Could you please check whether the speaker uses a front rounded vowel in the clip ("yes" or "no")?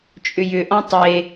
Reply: yes